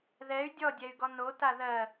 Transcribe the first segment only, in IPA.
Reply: ð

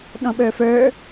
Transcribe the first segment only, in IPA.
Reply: ɗ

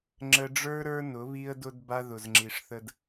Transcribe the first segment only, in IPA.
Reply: ŋ͡ǁ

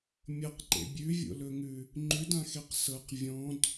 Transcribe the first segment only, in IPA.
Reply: mʲ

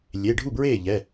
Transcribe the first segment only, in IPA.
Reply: lʲ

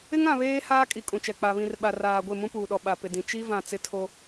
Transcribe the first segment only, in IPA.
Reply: ɪ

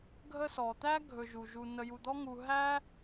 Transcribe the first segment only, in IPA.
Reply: ɡʱ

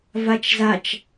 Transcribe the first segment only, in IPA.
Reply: v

